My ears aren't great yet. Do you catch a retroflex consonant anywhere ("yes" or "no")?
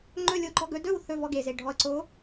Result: yes